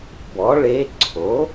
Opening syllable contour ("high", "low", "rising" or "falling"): rising